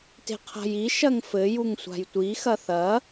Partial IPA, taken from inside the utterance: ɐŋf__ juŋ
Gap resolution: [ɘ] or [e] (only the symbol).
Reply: ɘ